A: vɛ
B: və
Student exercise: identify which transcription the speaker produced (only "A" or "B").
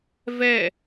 A